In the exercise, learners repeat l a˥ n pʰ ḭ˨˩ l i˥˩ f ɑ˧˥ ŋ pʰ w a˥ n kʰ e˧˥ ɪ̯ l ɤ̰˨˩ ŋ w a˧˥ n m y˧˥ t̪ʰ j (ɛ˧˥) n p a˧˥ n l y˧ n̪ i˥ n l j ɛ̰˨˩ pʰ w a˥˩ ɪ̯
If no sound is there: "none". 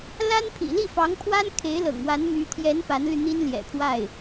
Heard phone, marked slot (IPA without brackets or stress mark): ɛ˧˥